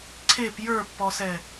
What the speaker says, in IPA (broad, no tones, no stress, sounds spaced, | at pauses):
ǀʰ e p j ə˞ pː ɔ s ɛ